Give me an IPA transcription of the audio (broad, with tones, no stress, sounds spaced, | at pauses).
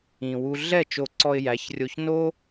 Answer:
ĩ˧ w u˦ ɮ ɛ˦˨ t͡ʃ o˧ ǀ ɔ˧ ɪ̯ j æ˨˦ ç rʲ o˧ ç n o˦